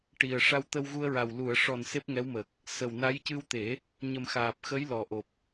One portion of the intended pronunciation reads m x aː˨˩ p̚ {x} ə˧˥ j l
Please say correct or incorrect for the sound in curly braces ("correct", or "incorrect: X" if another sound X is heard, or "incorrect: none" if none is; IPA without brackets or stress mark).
correct